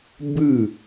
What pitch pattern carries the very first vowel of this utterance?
falling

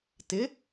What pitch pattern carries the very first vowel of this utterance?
rising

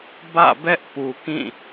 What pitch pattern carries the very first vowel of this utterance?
falling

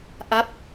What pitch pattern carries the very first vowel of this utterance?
falling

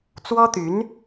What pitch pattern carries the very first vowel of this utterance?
high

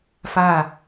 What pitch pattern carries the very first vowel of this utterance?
falling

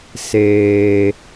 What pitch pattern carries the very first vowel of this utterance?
low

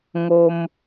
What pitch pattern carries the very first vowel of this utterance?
high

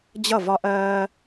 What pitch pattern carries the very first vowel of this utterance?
falling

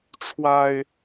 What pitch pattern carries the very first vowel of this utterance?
low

